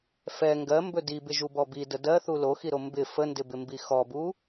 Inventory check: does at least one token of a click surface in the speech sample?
no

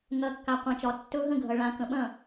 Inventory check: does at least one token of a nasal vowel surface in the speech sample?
yes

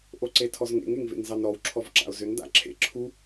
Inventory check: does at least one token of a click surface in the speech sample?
yes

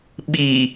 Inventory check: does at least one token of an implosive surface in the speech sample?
yes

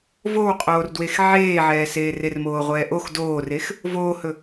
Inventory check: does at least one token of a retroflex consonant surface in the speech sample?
no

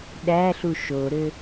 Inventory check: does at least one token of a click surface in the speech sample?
no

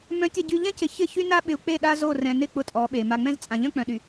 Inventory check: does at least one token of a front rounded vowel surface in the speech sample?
yes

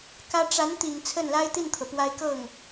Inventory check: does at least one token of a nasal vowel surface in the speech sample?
no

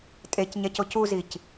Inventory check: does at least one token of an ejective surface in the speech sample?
yes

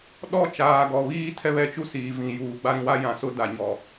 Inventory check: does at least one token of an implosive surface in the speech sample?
yes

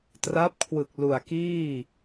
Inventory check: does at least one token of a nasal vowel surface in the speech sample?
no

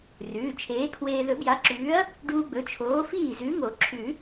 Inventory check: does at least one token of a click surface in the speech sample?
yes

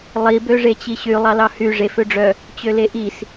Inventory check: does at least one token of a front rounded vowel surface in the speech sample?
yes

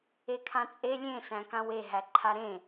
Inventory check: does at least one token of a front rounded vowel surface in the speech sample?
no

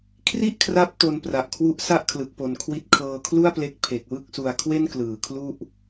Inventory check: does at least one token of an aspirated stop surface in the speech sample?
yes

